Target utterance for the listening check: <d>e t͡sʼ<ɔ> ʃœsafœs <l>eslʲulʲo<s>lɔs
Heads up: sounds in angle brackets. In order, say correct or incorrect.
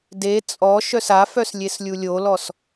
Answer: correct, correct, incorrect, incorrect

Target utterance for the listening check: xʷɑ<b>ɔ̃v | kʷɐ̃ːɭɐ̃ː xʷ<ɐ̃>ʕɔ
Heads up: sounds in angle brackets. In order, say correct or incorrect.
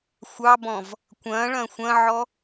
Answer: correct, correct

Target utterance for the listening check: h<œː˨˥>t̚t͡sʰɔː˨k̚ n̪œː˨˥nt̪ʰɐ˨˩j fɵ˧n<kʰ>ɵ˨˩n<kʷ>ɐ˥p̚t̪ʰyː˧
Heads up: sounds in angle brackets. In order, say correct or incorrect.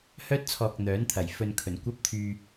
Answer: incorrect, correct, correct

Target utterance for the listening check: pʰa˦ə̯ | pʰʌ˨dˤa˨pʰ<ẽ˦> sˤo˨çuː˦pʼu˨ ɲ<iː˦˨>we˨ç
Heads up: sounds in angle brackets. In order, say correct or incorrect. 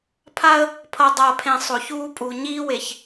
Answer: incorrect, incorrect

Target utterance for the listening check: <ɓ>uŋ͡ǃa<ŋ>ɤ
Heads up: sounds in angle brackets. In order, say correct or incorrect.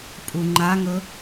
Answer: incorrect, correct

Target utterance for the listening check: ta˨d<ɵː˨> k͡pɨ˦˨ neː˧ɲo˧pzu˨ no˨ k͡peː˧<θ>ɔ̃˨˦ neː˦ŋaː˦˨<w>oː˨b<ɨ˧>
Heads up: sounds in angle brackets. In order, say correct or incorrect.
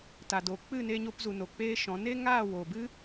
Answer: incorrect, incorrect, correct, incorrect

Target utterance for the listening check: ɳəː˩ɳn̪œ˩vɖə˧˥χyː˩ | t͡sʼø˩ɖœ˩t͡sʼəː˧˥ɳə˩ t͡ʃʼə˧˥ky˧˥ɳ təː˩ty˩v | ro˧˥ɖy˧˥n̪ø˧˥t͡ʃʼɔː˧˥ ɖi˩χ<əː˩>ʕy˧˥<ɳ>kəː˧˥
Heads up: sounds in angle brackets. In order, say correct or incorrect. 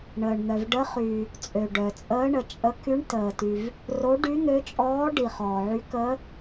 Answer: incorrect, incorrect

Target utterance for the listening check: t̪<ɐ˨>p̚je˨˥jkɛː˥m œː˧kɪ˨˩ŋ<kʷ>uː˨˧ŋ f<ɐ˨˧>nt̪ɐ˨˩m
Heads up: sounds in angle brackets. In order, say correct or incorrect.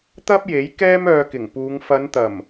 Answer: incorrect, incorrect, correct

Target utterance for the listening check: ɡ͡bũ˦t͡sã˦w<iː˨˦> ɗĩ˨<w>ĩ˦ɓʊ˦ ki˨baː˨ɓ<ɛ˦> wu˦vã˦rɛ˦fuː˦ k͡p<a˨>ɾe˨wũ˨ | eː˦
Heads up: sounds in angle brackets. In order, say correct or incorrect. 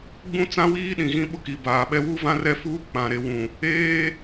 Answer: incorrect, incorrect, correct, incorrect

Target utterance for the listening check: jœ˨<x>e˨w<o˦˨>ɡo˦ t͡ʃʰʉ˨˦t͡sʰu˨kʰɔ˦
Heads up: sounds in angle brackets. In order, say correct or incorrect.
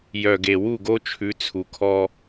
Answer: incorrect, incorrect

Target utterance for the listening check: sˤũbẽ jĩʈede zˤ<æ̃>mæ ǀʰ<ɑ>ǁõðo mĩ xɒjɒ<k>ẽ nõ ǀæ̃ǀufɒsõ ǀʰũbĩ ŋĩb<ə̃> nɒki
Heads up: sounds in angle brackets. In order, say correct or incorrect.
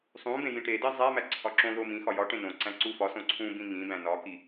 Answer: incorrect, incorrect, incorrect, incorrect

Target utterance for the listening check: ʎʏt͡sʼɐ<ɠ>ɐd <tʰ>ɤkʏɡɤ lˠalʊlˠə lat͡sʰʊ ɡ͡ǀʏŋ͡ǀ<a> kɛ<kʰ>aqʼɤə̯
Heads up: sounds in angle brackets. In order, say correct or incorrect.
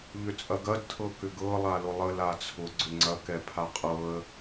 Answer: incorrect, correct, incorrect, incorrect

